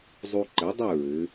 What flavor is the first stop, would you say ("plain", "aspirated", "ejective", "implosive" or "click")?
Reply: click